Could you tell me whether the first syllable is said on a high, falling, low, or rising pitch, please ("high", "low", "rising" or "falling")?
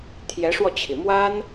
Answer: rising